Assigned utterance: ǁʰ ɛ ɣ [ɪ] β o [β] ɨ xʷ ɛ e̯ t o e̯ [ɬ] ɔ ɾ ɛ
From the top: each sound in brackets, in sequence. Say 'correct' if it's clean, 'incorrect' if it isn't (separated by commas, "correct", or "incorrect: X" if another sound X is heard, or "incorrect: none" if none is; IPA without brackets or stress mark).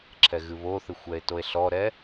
incorrect: ɨ, incorrect: θ, correct